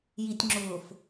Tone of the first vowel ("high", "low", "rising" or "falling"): low